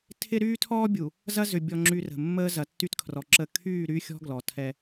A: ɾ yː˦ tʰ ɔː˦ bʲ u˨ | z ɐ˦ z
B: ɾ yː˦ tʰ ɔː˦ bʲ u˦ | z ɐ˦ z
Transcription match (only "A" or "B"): A